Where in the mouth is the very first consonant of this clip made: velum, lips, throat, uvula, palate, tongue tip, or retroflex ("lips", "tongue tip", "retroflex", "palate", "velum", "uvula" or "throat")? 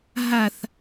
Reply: throat